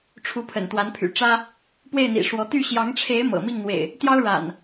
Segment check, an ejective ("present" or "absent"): absent